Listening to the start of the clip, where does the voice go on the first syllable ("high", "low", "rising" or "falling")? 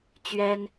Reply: high